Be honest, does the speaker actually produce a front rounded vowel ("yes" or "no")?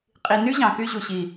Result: yes